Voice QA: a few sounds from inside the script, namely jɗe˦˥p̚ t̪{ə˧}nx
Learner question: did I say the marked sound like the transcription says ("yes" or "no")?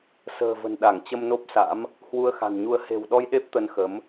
yes